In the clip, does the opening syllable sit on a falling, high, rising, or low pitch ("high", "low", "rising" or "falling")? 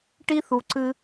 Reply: high